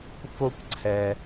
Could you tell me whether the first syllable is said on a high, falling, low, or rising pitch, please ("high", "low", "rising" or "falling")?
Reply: high